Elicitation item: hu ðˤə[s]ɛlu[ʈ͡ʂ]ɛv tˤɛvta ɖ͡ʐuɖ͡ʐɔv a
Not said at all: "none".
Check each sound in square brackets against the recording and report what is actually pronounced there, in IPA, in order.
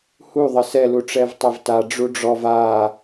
s, ʈ͡ʂ

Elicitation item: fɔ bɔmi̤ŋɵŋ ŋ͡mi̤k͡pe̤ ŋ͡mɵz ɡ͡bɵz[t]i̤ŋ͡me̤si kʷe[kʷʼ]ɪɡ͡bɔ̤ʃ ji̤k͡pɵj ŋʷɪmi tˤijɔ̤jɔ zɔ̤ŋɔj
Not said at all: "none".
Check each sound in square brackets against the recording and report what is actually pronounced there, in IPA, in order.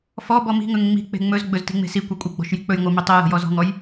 t, kʷʼ

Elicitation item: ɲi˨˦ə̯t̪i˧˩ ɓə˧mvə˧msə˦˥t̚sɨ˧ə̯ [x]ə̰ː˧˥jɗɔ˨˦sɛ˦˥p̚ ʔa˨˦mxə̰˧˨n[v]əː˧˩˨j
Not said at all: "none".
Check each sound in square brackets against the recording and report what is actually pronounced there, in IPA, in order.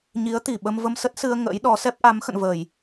ŋ, v

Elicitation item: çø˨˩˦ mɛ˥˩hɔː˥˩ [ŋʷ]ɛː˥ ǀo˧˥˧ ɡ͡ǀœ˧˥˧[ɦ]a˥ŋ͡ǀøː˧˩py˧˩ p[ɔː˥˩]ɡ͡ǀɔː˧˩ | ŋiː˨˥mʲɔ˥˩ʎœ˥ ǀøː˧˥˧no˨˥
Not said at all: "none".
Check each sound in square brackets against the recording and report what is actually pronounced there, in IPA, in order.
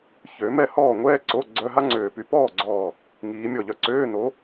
ŋʷ, ɦ, ɔː˥˩

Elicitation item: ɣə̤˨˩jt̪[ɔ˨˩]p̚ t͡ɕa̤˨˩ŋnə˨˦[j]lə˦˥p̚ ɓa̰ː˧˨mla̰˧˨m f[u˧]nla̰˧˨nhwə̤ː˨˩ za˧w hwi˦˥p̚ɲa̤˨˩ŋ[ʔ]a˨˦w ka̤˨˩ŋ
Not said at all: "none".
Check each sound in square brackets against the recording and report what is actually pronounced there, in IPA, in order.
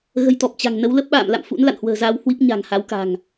ɔ˨˩, w, ṵ˧˥, h

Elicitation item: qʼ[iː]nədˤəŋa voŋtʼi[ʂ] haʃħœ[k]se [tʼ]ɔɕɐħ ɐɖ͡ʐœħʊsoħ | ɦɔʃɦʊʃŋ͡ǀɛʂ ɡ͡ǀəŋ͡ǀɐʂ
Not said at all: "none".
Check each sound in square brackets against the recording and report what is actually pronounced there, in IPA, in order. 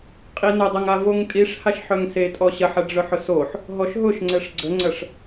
i, ʂ, ŋ, tʼ

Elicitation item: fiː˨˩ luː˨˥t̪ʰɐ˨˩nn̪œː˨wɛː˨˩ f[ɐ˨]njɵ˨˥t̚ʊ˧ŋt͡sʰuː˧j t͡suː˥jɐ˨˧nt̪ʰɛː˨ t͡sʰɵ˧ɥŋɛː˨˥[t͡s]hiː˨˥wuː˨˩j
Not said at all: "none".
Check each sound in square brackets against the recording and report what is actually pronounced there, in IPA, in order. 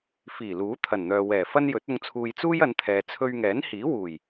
ɐ˥, n

